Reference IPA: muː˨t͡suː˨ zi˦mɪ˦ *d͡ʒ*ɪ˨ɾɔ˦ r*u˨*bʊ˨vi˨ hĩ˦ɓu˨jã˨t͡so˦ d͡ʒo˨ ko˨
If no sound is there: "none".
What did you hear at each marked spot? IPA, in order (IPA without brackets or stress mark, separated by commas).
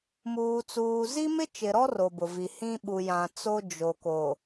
t͡ʃ, o˨